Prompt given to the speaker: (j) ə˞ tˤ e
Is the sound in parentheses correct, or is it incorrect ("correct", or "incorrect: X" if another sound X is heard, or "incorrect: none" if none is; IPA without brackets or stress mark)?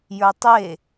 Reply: correct